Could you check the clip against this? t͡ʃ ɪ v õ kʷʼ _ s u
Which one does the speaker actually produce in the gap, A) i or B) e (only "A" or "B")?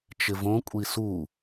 A